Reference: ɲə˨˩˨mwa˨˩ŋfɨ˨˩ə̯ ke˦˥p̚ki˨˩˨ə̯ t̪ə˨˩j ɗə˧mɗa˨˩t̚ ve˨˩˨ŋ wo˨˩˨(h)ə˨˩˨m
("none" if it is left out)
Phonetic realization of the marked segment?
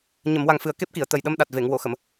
x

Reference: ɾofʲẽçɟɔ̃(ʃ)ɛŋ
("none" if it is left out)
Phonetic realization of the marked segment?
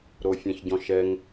ʃ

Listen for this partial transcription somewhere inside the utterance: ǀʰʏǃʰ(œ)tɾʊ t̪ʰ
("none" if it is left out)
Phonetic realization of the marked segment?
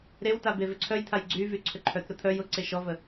œ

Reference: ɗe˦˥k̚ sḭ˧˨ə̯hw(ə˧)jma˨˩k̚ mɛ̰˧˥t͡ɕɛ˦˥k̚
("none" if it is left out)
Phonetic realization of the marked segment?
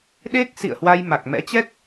a˧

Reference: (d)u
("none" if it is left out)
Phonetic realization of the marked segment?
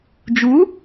d͡ʒ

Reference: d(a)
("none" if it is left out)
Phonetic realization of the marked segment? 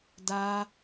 a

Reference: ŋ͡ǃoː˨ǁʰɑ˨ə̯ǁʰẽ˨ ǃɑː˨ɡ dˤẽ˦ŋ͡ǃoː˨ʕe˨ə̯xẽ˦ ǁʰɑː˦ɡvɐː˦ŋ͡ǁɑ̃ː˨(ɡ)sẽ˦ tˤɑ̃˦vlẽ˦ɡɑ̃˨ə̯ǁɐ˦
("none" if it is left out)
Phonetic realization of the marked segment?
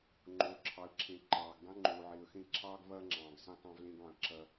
ɡ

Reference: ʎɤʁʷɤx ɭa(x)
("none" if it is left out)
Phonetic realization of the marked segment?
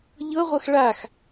x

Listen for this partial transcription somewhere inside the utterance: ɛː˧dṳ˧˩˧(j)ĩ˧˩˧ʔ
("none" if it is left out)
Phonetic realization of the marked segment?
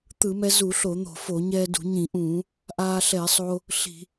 ɲ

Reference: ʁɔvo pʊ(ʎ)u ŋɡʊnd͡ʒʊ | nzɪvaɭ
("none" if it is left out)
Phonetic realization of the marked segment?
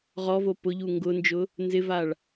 ʎ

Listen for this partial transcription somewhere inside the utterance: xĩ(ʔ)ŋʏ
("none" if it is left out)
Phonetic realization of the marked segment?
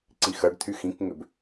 k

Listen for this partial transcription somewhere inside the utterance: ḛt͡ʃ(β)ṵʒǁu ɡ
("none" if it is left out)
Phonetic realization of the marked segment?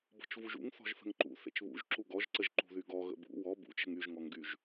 β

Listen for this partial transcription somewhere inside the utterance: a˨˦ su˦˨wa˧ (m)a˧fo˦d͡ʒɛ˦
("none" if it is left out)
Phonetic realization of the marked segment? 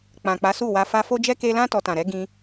f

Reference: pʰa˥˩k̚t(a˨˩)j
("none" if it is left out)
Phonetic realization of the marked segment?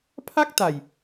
a˨˩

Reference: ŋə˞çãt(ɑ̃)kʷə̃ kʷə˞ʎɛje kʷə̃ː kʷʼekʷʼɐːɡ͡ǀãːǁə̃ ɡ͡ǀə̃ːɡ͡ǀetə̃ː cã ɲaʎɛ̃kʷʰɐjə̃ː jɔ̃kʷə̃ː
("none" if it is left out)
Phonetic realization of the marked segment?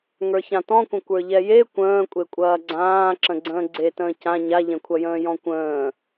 ɔ̃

